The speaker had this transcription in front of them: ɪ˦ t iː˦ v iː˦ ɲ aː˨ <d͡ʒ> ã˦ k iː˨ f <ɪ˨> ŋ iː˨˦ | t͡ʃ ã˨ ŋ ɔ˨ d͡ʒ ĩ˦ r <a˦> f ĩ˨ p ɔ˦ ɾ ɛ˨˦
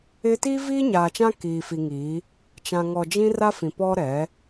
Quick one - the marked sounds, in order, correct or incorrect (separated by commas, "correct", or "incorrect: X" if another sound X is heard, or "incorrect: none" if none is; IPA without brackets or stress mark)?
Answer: incorrect: t͡ʃ, incorrect: i˨, correct